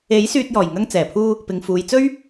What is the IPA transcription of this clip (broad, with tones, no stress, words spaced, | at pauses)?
e˨˥j syː˧t̚jɔː˨˩j ŋɐ˧ŋt͡sɛː˨˩pʰuː˧ | pɪ˨ŋfuː˨jt͡sɵ˥ɥ